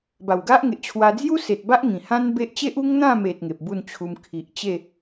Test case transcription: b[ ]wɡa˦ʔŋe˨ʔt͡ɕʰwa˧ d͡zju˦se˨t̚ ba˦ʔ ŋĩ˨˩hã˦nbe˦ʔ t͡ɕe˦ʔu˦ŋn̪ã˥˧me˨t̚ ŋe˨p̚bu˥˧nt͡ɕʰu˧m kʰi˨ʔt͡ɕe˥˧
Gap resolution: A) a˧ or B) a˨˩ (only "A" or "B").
B